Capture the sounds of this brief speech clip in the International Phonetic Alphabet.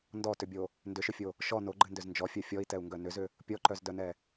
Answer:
ndɔtʏbʲo | ndʏʃʏfʲo | ʃɔ noɡ͡ǃɨndʏz nd͡ʒɔfʲœ fʲɔi̯tɛu̯ŋɡœ nʏzʏ | pʲɔǃœzdœnɛ

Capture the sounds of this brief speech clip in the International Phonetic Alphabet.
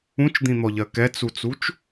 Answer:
ũt͡ʃd̪ĩn̪ɔʎɜ kɛt͡sut͡sut͡ʃ

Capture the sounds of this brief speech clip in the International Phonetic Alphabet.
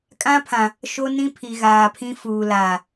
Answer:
kʼã˦pʰã˨ | ʃo˦nĩ˦pʰi˨ ɣaː˨pʰĩ˦ fuː˨laː˨

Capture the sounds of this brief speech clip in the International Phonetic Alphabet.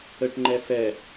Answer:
əʈŋ͡ǃɛ fɛ

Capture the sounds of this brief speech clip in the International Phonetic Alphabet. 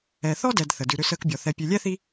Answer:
ɛ˨θɔ˥dɛ˨d θə˩dʉ˨ ɾʏ˦səː˦kbʲɔ˨ θɛ˨pʲʉ˨lʲɛ˥θi˦

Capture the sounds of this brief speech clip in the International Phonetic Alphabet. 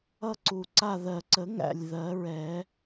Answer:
ʌ˥˧ǀu˨˩ǀa˥˧ ðɜ˨˩ǀə˨˩˦ŋæ̰˨˩lʲ ðɜ˨˩˦ɹɛ˨˩˦

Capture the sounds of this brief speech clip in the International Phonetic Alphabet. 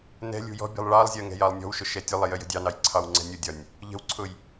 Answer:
nɛ̤ lʲṳjɔ̤bʲɛ̤lˠ ɭɑlˠzʲɜ ŋɛ̤jɑlˠnʲɔ̤wʃʊ ʃɛtʲʊlˠɪ jəjə̤dʲɑnɑj ǀʰɑwŋ͡ǀɛ̤nʲʊdʲɒnʲ | ʎə̤wǀʰʊj

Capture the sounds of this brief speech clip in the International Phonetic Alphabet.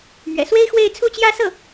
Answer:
mɥɛ̰˨˩swe˥ɪ̯xwe˥˧ɪ̯ t͡sʰu˥˧t͡ɕjä˥˧sɤ˥˩

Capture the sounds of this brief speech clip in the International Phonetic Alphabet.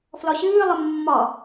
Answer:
flɒɕɨːlˠə mːɒ

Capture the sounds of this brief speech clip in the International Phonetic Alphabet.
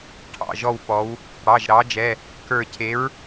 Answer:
ʈʰɑ̰˩˧˩ʒɔ˦˨w pɔ˩˧w | ɽɑ˩˧˩ʒɾɑ˨˥d͡ʒɛ˩˧˩ | kə˞˦˨ cʰe˨˥ɹ

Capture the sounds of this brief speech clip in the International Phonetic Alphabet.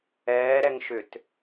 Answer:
ɛːɾɛŋ ʃʏt

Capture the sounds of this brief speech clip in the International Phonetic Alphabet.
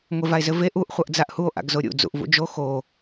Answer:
ŋʷevae̯zɘve ʔuʔ χʷʌʔd͡zaʔhuo̯ ʔa̰ɡzoɾʲṵ d͡zṵʔvṵd͡ʒo xo

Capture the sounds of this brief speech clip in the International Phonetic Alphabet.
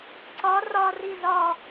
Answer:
ǀɒ rɒri zɒ

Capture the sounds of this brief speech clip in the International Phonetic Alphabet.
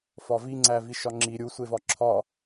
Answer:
fɒviŋ͡ǀæ viʃɒŋ͡ǁi ɾʲusʷe vɒǁʰɒ

